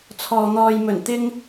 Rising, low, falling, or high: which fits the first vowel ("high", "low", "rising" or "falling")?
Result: low